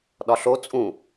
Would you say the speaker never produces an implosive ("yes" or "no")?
no